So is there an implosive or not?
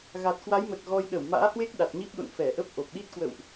yes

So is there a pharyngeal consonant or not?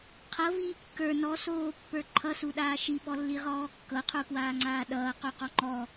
no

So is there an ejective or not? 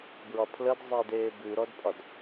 yes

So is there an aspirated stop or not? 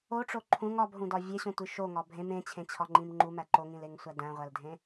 yes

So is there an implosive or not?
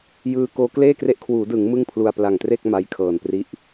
no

